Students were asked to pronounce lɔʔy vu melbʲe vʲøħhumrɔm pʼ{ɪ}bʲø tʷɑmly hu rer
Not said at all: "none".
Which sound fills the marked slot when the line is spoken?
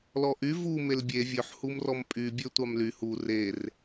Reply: y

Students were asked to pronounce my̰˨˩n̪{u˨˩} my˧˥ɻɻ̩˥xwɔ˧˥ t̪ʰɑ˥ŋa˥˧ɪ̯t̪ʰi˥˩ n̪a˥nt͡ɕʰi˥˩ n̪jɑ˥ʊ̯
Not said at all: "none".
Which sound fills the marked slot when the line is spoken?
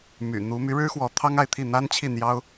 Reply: u˧˥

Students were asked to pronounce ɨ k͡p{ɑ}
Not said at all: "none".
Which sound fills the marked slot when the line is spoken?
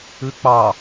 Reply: ɑ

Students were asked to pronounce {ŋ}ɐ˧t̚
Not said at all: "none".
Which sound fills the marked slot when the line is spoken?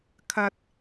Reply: kʰ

